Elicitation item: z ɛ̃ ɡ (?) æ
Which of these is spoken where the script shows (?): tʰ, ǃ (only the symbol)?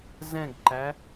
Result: ǃ